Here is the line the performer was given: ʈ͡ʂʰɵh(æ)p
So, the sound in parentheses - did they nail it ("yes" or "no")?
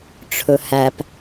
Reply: yes